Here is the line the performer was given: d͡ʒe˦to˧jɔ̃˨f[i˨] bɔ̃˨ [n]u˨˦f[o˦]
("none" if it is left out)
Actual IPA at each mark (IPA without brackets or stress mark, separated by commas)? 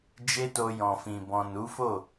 ĩ˨, n, o˦˨